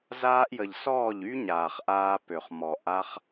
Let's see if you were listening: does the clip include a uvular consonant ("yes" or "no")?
yes